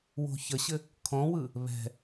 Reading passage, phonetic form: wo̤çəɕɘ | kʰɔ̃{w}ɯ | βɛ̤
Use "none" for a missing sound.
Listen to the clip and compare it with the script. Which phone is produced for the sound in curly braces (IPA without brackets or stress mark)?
w